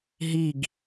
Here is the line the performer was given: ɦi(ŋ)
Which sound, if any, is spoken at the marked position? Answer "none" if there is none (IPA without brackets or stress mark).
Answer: ɡ